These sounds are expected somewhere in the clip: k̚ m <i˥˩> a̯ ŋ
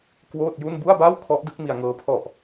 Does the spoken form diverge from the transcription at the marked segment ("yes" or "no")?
yes